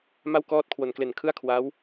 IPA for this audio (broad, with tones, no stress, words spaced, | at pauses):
ma˥˩w kɔː˦˥t̚ kʰwo˨˩nkle˨˩nkʰɯ˥˩a̯kʰwa˦˥w